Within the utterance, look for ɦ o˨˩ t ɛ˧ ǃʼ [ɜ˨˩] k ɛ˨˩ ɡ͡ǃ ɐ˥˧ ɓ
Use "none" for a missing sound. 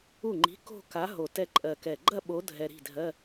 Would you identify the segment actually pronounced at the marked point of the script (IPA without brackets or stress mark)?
ɜ˨˩